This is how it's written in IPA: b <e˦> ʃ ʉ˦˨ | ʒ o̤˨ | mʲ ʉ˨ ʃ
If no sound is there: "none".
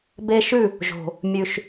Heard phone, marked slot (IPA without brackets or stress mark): e˦